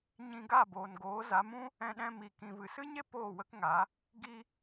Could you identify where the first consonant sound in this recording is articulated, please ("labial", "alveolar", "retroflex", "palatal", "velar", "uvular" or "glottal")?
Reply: palatal